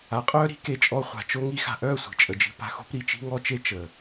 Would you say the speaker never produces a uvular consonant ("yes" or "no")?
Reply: no